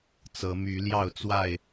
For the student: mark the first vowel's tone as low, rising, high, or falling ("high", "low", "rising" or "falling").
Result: rising